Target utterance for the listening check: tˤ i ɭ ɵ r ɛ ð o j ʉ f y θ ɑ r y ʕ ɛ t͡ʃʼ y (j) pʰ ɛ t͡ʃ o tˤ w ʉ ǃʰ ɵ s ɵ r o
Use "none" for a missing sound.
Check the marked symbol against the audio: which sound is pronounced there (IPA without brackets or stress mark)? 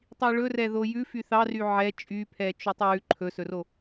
none